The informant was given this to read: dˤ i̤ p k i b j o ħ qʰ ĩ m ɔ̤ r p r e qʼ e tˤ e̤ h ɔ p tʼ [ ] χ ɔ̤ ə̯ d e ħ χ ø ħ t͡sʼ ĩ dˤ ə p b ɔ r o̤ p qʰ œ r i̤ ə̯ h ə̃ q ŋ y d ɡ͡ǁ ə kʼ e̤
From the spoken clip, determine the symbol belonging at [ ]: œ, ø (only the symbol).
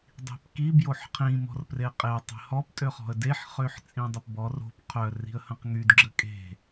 ø